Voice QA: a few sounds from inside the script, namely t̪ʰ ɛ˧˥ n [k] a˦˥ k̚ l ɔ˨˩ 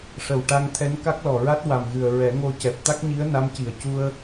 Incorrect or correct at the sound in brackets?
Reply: correct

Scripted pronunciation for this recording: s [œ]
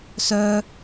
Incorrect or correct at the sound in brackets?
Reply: correct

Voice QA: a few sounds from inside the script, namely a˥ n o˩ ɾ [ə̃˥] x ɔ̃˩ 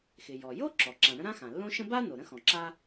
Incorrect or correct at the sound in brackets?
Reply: correct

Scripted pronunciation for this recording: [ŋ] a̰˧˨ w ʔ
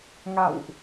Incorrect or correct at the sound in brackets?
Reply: correct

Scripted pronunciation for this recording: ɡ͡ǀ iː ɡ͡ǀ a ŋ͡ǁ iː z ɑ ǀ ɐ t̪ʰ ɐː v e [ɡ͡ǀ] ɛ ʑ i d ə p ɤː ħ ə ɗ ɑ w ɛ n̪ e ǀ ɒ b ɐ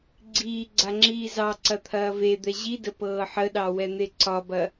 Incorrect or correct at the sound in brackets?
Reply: incorrect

